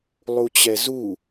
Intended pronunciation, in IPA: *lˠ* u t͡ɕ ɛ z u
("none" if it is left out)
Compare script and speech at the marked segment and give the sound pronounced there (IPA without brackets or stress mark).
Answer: lˠ